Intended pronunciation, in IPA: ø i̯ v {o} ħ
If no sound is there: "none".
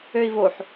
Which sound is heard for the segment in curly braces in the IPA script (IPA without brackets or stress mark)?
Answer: o